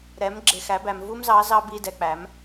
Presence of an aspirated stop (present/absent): absent